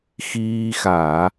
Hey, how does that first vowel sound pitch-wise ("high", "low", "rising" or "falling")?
high